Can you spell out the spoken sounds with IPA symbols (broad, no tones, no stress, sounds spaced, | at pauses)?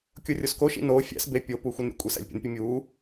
kʲ o rʲ o s k o ʃ ḭ n oː fʲ æ̰ s b e pʲ o p uː xʷ e n ɾʲ ṵ kʷʼ i s æ̰ lʲ pʲ ṵ n pʲ u mʲ uː